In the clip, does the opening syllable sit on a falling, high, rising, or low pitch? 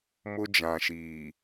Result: high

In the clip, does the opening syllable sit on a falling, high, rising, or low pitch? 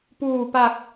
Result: low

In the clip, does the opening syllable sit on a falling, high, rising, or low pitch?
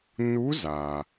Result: rising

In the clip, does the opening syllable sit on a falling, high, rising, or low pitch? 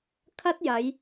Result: high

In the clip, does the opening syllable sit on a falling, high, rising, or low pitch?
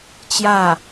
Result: falling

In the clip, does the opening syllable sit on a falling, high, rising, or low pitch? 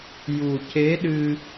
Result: low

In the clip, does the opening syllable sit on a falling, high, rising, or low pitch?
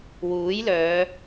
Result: rising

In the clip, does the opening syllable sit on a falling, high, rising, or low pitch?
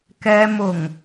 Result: low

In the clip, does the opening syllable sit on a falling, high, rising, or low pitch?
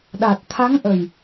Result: low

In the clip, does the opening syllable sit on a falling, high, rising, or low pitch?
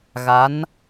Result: rising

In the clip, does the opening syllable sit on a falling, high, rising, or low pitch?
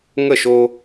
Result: falling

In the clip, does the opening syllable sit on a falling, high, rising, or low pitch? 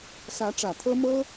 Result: rising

